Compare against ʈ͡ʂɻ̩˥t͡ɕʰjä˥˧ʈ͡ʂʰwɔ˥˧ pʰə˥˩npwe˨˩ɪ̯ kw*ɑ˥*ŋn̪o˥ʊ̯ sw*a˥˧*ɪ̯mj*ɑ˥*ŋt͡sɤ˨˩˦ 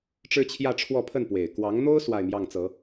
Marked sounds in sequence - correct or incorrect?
incorrect, correct, incorrect

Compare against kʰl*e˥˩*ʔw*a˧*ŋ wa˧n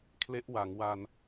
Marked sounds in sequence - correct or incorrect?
incorrect, incorrect

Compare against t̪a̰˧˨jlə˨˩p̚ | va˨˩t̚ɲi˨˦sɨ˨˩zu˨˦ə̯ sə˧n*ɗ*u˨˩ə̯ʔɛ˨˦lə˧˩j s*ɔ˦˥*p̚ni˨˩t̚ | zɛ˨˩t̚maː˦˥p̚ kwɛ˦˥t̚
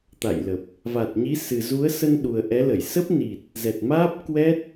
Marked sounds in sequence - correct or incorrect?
correct, incorrect

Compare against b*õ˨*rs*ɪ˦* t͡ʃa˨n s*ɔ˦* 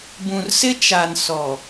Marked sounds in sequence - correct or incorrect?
incorrect, correct, incorrect

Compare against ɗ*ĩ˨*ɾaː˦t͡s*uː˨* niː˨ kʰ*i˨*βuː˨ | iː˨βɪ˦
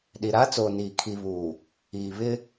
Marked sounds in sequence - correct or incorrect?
incorrect, incorrect, correct

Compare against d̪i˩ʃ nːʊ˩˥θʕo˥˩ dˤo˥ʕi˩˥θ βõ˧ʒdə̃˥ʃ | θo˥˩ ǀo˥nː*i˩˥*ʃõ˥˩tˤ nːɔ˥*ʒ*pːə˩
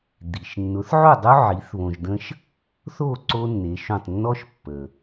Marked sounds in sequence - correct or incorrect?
incorrect, incorrect

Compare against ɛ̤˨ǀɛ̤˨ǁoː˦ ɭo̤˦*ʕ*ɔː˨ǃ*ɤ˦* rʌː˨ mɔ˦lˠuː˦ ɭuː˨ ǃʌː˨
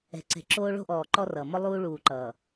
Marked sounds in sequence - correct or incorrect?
incorrect, incorrect

